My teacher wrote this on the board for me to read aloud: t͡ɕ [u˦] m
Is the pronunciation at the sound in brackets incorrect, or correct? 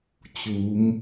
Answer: incorrect